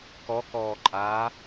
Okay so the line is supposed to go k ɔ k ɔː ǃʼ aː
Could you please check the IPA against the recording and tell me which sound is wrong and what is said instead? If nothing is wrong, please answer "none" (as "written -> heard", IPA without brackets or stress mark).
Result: none